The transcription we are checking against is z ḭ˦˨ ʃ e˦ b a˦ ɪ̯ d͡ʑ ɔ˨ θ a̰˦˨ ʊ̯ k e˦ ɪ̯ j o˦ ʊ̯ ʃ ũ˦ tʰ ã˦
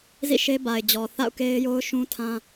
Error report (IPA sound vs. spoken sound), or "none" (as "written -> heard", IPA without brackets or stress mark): a˦ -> a˨